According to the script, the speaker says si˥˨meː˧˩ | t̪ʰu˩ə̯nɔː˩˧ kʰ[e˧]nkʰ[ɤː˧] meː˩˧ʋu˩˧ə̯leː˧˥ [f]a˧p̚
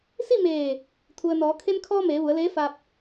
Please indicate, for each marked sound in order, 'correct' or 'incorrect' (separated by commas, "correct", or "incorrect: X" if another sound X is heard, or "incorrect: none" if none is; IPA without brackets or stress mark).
correct, incorrect: ɔː˧, correct